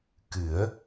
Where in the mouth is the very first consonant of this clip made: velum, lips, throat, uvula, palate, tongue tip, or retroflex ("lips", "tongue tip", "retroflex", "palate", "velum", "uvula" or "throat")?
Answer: velum